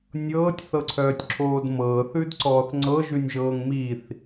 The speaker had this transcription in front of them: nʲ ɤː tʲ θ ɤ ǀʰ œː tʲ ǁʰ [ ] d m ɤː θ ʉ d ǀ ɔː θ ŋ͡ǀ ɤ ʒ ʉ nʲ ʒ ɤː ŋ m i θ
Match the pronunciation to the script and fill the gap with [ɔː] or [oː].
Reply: oː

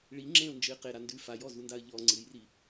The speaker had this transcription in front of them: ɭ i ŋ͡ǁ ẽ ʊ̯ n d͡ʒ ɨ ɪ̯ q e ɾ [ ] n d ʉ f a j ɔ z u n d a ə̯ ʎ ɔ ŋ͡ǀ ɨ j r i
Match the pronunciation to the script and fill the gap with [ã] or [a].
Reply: a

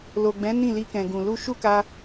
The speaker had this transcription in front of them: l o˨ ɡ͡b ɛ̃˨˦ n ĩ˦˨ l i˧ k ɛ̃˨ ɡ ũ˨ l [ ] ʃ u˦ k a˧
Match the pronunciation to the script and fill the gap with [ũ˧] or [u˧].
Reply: u˧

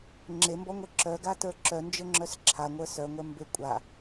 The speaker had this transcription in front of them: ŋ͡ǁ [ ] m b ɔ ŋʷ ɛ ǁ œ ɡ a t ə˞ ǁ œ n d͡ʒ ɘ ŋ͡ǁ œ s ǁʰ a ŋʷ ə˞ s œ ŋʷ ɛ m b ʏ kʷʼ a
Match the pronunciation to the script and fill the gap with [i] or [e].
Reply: e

